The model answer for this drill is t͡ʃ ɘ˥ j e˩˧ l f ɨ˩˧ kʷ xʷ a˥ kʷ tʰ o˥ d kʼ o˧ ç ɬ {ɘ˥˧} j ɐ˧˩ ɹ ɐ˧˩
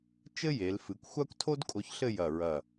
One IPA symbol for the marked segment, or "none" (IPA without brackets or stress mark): ɘ˥˧